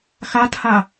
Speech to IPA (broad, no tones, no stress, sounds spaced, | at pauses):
x a t h a